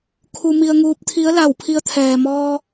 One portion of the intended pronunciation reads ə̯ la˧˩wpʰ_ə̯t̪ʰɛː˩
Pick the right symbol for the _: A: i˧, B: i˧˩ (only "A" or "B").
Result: A